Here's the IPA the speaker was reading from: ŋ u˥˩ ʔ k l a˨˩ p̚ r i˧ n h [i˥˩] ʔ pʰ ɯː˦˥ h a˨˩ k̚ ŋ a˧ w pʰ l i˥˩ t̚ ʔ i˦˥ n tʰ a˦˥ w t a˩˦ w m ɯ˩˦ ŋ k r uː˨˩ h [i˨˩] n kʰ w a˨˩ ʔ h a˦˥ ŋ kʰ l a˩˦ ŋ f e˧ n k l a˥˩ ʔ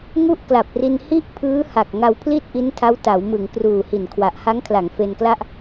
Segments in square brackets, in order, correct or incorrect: correct, correct

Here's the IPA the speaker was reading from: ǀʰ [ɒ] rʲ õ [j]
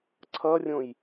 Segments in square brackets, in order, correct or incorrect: incorrect, correct

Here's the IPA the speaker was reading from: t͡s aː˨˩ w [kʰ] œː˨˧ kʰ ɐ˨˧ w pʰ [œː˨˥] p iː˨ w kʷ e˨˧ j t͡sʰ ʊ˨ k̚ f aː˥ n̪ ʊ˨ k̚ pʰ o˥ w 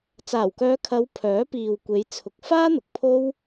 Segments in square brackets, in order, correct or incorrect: incorrect, correct

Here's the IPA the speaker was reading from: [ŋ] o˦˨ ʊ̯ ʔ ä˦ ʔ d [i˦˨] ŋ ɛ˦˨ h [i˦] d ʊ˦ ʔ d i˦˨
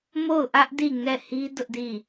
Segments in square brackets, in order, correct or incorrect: incorrect, correct, correct

